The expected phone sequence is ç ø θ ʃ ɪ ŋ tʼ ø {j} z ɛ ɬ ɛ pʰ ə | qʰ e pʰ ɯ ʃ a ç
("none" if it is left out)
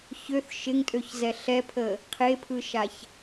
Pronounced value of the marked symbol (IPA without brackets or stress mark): ç